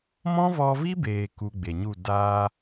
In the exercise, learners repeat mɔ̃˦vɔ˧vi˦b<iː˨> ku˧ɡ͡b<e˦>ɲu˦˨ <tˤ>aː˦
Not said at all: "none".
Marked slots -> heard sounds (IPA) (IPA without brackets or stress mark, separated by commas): eː˨, e˨, d